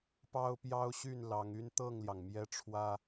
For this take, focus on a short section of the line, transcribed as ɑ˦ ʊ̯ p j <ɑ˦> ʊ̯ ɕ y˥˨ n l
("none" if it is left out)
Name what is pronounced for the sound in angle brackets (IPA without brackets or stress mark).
ɑ˦